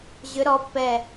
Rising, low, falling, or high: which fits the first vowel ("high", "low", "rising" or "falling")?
rising